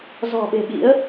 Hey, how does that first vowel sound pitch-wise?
low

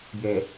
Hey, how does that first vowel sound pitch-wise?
low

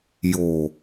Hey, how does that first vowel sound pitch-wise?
low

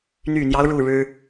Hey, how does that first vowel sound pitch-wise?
low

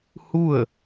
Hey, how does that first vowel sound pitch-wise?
falling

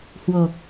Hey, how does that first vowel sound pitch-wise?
low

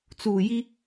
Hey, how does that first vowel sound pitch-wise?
low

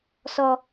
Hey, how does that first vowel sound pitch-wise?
high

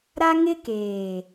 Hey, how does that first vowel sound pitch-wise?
high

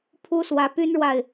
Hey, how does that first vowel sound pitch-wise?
high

